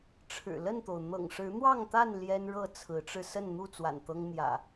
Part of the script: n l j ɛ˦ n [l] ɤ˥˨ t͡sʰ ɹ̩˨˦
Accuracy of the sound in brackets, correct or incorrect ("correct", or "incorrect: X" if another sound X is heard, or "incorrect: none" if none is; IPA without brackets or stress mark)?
incorrect: ɻ